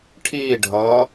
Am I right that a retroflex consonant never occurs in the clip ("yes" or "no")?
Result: no